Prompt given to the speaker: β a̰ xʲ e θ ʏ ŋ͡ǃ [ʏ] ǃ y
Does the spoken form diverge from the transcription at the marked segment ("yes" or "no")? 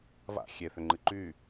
yes